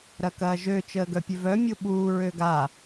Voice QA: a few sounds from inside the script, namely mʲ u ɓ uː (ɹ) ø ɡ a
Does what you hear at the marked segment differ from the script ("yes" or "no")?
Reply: no